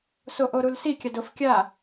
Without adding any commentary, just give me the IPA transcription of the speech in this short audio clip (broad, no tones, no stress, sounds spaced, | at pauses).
s o ʔ o ɾ u l s i kʲ a d ʊ f kʲ a